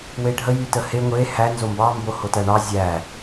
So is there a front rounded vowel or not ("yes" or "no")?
yes